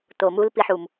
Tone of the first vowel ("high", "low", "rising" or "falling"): low